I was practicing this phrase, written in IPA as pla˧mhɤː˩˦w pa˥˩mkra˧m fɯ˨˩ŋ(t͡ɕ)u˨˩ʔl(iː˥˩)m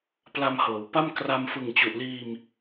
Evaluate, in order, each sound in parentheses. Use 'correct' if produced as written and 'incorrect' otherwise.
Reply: correct, incorrect

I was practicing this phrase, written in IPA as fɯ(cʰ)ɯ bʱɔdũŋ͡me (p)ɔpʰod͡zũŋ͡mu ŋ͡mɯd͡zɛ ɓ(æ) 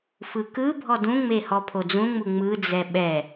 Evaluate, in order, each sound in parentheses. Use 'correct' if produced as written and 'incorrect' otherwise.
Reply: incorrect, incorrect, incorrect

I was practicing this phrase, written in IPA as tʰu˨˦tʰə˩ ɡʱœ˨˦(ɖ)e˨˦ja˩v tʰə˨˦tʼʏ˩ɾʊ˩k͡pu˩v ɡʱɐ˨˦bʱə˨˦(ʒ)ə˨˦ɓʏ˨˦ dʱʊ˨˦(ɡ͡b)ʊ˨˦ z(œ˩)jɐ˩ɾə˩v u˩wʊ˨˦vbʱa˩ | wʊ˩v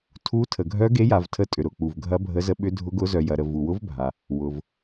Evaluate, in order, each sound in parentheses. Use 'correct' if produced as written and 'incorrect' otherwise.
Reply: incorrect, incorrect, incorrect, correct

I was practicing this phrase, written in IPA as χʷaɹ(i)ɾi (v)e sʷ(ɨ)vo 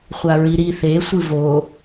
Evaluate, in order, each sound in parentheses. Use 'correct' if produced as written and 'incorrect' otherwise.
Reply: correct, incorrect, correct

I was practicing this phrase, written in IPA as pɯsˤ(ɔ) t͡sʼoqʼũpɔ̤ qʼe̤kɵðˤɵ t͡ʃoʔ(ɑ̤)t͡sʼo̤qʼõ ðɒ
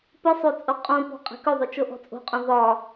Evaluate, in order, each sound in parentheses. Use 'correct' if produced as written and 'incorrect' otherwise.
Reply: incorrect, incorrect

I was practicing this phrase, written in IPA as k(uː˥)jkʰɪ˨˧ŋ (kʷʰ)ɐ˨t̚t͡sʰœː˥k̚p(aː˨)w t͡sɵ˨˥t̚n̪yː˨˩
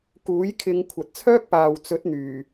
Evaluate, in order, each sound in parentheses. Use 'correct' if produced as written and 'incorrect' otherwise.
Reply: incorrect, correct, correct

